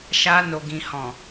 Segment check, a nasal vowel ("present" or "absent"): present